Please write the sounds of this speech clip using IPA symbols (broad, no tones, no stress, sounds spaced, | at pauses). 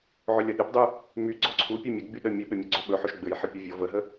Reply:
ʕ ɵ lʲ ʌ ɗ ɘ p dˤ y | m y ɡ͡ǀ ɔ ǀʰ u pʲ ɔ mʲ ʌ ɡ͡b y ɗ ə mʲ ə ɓ ɘ mʲ ɘ ɡ͡ǀ ɵ ɓ ɵ ħ ɵ ʃ ɡ͡b ɘ j ħ ʌ pʲ ɔ vʲ ɔ v ə ɦ ə